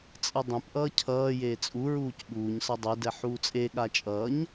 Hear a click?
no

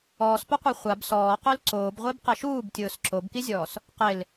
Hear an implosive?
no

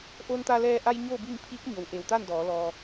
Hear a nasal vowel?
no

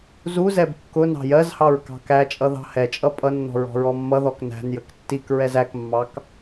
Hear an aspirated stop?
no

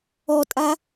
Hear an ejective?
yes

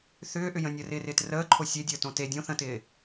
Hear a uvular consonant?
no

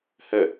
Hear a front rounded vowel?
no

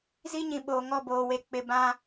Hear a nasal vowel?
yes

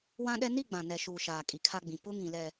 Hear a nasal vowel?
yes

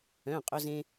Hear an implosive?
no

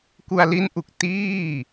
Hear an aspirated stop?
no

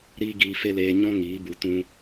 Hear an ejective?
no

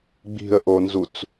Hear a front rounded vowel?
no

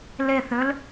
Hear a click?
no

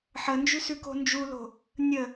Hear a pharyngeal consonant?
yes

